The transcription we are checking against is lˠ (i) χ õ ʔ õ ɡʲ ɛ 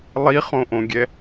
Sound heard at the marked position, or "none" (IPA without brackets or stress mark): i